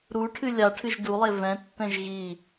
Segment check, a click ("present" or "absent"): absent